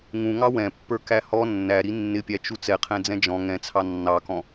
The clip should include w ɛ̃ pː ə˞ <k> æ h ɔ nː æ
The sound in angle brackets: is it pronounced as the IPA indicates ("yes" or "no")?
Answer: yes